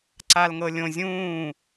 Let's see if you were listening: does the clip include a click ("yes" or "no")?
yes